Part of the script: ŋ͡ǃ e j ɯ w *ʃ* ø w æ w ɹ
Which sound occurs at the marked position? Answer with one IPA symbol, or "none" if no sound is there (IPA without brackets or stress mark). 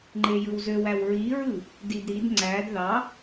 z